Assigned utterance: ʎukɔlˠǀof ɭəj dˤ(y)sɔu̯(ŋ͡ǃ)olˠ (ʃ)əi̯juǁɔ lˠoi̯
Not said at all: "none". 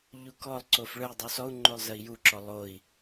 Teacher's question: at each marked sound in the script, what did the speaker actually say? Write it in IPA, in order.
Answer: u, ŋ͡ǃ, z

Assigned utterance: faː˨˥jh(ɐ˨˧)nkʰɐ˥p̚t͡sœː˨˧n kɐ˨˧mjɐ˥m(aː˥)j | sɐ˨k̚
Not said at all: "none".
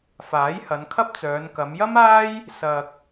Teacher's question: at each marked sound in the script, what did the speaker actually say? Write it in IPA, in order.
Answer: ɐ˨˧, aː˥

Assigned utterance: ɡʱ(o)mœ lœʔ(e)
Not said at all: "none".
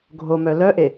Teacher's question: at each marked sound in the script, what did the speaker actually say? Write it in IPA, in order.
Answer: o, e

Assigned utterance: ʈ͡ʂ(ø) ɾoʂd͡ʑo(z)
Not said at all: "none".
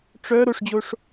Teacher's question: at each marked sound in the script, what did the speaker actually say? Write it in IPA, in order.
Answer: œ, ʂ

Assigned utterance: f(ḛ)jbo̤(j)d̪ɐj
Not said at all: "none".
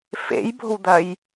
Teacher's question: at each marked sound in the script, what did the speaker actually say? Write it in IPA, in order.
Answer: ḛ, w

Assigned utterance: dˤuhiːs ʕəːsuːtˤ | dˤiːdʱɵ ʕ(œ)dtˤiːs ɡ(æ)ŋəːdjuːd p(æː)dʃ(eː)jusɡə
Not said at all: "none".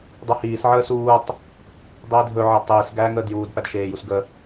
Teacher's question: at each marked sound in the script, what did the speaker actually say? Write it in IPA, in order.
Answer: æ, æː, æ, eː

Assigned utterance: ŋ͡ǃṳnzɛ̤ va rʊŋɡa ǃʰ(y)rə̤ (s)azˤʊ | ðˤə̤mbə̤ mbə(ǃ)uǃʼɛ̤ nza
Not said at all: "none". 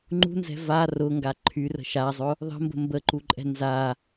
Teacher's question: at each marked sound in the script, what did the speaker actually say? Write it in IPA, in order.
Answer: y, ʃ, ǃ

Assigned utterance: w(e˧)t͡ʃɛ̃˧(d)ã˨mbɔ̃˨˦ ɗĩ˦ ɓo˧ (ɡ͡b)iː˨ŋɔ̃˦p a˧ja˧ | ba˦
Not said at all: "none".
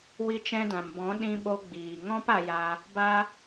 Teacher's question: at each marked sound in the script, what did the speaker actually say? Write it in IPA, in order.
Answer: i˧, d, ɡ͡b

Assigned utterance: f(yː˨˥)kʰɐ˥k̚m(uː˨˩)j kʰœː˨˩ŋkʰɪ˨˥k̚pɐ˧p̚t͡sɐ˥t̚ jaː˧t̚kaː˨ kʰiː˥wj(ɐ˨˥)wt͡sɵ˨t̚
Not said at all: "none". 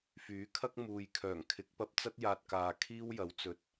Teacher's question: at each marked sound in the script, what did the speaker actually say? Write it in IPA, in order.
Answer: yː˨˥, uː˨, ɐ˨˥

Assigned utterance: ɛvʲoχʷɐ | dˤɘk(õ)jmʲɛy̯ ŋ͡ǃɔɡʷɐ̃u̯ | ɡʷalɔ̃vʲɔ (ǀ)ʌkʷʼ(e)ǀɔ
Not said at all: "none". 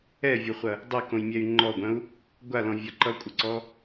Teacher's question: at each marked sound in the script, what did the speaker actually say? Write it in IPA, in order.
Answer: õ, ǃ, ɘ

